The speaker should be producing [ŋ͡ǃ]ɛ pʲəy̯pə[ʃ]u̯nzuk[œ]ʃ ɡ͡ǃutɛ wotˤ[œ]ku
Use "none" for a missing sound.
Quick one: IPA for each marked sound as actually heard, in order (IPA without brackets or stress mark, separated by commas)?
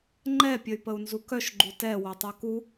ŋ͡ǃ, none, œ, œ